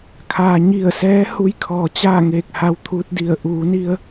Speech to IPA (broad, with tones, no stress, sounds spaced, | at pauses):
kʰ aː˩ ɲ i˧˩ ə̯ s ɛː˧˥ h u˧˥ j kʰ ɔː˩ t͡ɕ aː˥˨ ŋ eː˧˩ k̚ h a˧ w t̪ʰ uː˧˥ t̚ d i˧˩ ə̯ ʔ uː˩˧ n i˧ ə̯